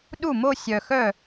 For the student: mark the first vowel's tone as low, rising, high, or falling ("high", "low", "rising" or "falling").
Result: falling